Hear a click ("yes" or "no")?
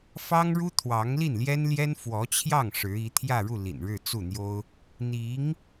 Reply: no